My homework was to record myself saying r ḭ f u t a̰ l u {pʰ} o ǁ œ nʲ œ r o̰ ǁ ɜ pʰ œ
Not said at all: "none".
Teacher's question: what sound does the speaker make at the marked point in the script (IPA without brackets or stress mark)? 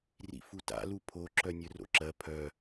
pʰ